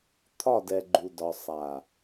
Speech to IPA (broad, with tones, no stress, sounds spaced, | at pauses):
t̪ʰ ɒ˦˨ d ɛ˨ ɡ͡ǃ u˨ d ɒ˨ sˤ a˨